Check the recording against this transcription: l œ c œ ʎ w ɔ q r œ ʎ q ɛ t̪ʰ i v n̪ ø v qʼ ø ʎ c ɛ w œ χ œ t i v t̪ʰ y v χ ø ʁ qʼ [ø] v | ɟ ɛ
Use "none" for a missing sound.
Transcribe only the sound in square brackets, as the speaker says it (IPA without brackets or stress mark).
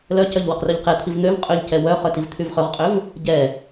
ø